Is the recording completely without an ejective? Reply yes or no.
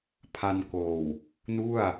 yes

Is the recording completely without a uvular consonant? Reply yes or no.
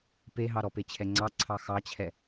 yes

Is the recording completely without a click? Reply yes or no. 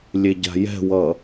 yes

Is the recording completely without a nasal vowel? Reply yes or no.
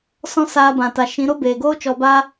no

